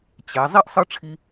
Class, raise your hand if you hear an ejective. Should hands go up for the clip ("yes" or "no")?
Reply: no